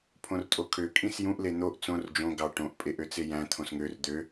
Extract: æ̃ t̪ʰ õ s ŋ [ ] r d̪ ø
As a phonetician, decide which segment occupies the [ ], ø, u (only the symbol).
ø